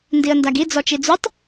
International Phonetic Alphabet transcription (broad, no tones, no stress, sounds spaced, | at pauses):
n d i ə̯ n d a ɡ i d͡z ɔ t͡ʃ i d͡z u tˤ